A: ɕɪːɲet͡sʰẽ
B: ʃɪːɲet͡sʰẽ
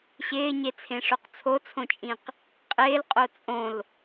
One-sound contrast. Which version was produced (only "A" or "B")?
A